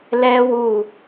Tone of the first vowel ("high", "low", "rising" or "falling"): high